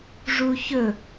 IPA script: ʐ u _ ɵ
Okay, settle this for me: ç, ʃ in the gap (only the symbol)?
ç